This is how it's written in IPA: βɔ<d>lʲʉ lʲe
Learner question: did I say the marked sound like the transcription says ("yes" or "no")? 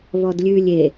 yes